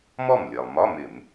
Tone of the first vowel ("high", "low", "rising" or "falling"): falling